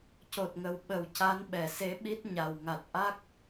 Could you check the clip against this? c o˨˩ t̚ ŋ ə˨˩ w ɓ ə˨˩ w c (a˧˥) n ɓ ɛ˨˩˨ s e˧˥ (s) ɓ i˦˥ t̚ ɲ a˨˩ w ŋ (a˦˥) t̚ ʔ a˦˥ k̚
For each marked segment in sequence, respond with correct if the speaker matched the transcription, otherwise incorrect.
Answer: correct, incorrect, incorrect

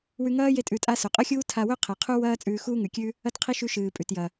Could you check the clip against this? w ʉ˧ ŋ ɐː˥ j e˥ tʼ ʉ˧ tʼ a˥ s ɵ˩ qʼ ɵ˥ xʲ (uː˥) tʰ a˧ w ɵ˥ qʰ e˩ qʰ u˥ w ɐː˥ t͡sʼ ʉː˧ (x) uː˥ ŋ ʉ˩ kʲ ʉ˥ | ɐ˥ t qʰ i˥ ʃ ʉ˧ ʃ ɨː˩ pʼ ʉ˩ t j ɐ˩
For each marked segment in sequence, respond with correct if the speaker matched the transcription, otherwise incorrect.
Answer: correct, correct

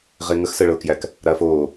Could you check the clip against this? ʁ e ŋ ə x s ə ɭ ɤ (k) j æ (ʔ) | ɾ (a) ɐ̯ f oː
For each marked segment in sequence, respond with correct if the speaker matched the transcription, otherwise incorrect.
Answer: correct, incorrect, correct

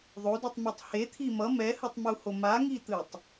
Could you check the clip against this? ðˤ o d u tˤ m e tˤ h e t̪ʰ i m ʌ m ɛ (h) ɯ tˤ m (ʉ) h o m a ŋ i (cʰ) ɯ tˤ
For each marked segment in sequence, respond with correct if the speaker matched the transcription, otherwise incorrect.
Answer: correct, incorrect, incorrect

